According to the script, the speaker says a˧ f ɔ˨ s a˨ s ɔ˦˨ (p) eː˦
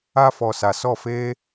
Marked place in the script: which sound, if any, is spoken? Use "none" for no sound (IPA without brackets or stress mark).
f